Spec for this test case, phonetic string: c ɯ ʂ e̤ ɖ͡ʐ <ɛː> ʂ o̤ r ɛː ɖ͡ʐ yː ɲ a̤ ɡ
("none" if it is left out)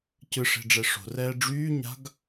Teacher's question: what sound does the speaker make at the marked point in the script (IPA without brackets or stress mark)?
ɛ